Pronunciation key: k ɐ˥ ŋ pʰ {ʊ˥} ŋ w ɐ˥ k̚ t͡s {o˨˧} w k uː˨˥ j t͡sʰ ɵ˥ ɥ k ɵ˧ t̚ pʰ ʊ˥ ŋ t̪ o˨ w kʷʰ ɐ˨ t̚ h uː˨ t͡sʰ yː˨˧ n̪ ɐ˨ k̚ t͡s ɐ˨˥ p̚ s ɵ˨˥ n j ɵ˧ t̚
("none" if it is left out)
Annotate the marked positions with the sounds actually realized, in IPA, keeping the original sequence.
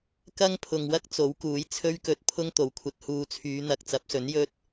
ʊ˨, o˨˥

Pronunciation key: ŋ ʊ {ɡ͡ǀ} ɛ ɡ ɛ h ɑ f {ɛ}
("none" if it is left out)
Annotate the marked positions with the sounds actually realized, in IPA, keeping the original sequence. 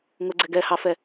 ɡ͡ǀ, ɛ

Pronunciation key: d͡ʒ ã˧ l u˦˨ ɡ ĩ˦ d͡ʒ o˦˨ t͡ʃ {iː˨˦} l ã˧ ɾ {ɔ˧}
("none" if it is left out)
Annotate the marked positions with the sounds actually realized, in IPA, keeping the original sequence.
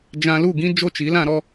iː˨˦, ɔ˧

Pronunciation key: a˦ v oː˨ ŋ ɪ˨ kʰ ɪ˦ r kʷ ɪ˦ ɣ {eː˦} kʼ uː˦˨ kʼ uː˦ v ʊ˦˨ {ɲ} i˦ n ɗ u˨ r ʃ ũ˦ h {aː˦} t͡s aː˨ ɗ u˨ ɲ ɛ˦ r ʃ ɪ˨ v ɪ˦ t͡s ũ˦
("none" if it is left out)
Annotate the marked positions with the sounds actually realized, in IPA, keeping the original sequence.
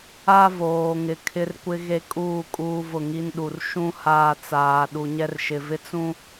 e˦, ŋ, aː˦

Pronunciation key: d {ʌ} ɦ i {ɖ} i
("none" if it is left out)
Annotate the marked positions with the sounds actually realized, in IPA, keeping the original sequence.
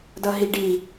ʌ, ɖ

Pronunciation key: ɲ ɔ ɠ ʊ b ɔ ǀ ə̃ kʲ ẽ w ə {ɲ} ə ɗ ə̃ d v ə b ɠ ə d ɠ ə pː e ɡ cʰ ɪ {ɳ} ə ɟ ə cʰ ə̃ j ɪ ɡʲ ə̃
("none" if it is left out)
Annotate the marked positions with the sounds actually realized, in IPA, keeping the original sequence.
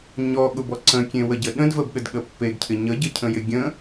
ɟ, ɲ

